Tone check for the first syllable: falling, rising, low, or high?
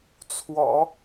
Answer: low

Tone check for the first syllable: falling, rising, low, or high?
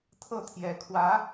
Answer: falling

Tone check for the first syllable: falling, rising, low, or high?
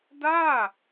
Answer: falling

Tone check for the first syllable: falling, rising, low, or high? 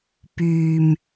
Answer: low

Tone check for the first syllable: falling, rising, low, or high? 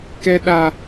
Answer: high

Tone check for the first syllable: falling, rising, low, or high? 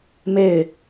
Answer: falling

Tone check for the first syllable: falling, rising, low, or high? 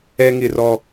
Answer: high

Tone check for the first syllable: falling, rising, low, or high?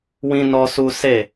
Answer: high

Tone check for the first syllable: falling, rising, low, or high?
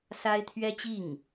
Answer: high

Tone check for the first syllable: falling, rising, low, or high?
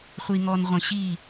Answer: low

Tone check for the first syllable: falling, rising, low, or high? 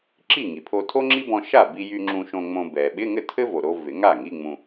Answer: falling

